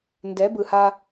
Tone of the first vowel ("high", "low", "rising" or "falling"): rising